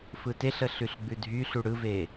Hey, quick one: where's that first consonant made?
lips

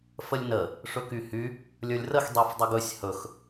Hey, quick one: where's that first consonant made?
lips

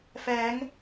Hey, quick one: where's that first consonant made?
lips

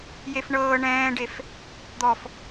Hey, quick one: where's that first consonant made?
palate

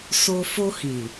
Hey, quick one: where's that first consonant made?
tongue tip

